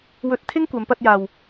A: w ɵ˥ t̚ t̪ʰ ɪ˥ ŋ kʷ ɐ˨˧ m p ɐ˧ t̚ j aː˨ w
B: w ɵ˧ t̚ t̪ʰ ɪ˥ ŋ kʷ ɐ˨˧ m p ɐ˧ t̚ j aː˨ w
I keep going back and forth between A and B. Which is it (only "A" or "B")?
B